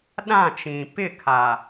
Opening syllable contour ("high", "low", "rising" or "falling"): falling